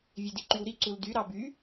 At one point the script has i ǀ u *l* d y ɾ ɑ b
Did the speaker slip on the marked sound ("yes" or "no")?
no